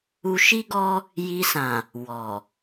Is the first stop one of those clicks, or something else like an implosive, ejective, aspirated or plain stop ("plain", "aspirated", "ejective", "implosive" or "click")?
plain